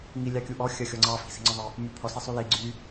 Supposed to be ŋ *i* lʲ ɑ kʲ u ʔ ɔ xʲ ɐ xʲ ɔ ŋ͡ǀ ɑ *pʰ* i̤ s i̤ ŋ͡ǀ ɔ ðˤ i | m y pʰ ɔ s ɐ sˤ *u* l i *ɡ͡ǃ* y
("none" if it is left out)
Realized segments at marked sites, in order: i, f, y, ɡ͡ǀ

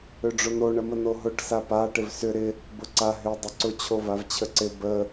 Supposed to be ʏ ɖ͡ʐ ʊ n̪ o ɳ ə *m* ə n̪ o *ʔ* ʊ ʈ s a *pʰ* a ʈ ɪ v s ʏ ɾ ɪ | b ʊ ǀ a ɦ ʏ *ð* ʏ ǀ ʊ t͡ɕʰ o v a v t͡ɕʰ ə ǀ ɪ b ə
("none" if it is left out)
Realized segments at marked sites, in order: m, ɦ, p, dˤ

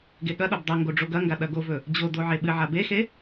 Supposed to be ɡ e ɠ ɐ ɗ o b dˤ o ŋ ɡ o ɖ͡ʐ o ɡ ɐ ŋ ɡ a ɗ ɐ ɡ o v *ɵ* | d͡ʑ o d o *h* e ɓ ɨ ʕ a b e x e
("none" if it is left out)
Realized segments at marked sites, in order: ɵ, ʕ

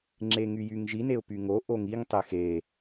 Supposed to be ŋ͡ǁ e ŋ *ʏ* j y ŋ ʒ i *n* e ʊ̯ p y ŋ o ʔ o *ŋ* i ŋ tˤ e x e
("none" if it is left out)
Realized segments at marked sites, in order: y, n, ŋ

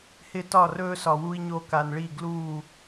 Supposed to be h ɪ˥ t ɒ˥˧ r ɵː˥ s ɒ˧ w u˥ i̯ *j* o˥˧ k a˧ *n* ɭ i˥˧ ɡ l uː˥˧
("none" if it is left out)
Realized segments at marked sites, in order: ɲ, n

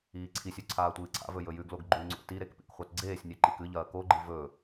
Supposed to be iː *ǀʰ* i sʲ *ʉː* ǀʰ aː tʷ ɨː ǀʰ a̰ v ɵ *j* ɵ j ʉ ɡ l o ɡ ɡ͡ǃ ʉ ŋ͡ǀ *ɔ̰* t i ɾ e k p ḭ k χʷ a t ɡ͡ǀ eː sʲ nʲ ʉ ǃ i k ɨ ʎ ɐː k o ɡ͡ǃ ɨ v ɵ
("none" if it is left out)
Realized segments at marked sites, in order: ǀʰ, ʉ, j, o̰

